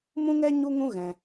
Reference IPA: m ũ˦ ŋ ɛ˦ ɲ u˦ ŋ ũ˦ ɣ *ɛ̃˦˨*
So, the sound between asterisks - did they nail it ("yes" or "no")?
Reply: no